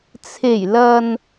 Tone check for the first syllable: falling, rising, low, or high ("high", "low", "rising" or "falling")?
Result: low